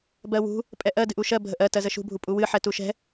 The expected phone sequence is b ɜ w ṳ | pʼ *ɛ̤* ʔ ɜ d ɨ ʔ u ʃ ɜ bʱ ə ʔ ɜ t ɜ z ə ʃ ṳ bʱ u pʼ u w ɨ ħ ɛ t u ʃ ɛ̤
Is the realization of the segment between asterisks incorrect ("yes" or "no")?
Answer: yes